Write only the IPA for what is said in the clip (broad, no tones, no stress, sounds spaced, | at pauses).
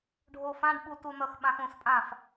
ɖʱ o f ã ɖ ɓ u t u n ʌ x ɓ ã x õ s pʼ ã f